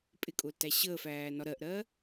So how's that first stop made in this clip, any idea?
ejective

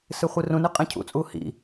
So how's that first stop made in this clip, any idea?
ejective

